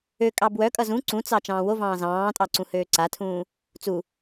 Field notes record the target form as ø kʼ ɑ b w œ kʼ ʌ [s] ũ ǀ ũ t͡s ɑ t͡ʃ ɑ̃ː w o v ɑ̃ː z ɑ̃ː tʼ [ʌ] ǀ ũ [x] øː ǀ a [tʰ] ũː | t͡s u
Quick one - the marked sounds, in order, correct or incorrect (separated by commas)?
incorrect, incorrect, incorrect, correct